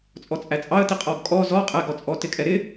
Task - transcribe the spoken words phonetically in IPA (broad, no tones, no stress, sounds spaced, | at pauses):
t͡sʼ ɔ t͡sʼ æ t͡sʼ ɑ ə̯ t i qʼ ɔ ɡ kʼ ɔ z ɔ qʼ ɛ ɡ ɔ t͡sʼ ɔ t ɪ kʼ ɛ ɾ ɪ